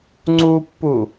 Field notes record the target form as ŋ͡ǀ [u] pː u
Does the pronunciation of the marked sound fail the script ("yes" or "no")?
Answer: no